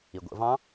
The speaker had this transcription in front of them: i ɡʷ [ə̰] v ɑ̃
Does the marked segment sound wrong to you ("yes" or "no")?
no